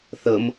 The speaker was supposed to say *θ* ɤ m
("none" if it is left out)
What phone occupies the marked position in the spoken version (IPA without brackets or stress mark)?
θ